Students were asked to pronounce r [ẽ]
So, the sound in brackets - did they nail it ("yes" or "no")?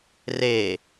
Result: no